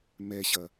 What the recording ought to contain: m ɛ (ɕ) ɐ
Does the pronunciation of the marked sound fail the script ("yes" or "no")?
no